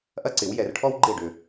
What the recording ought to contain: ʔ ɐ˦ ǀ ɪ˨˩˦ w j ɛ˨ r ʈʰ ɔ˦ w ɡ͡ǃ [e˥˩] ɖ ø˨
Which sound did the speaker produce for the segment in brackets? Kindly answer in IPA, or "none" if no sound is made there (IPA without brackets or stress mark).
e˥˩